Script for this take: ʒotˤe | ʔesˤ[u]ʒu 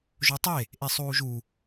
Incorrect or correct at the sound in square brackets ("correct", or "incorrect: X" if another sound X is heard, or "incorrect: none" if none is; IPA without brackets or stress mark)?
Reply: incorrect: uː